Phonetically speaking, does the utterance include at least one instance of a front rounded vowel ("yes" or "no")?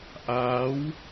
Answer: no